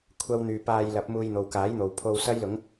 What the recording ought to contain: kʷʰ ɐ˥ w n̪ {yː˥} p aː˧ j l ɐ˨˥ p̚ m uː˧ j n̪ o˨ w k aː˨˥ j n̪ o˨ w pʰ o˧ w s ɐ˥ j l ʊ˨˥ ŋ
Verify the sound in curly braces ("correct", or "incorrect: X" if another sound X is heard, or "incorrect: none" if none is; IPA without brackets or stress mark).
incorrect: yː˧